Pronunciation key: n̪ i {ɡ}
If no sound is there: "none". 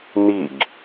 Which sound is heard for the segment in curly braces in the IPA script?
ɡ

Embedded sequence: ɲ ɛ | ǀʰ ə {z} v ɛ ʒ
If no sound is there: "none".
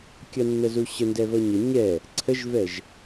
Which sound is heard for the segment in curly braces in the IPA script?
ʒ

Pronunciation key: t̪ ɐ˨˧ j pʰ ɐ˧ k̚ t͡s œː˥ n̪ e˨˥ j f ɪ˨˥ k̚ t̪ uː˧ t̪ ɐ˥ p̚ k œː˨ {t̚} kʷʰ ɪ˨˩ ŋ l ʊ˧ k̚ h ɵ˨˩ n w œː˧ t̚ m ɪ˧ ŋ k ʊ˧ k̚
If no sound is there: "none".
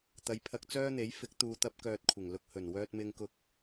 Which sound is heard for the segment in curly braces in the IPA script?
t̚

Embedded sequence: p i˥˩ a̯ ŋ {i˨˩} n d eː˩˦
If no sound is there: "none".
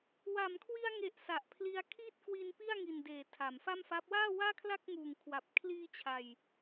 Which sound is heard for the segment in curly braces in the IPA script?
i˨˩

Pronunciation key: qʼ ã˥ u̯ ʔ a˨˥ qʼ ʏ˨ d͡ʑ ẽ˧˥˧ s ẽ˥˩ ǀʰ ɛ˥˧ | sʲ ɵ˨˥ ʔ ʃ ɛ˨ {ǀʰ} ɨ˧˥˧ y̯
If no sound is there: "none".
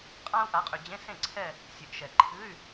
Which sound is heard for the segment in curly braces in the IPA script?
ǃʰ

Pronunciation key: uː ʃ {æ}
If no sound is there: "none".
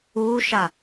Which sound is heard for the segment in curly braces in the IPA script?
a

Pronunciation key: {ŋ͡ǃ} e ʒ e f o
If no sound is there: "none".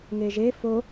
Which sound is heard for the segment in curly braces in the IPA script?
ŋ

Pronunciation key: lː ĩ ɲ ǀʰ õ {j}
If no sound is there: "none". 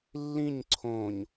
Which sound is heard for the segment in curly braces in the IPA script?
ɲ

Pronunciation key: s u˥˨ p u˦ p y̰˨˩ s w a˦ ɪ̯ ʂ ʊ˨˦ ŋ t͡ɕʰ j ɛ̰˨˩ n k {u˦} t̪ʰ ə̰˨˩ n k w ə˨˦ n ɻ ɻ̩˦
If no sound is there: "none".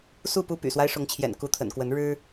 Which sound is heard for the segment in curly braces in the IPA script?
u˨˦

